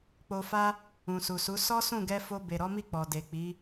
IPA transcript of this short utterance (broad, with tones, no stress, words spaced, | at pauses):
k͡po˧fa˦ | ũ˨su˨su˨˦ sɔ˦sũ˦˨ɡɛ˧ fo˧be˨ ɾɔ˨˦mi˦˨ k͡pɔ˨de˨k͡pi˨˦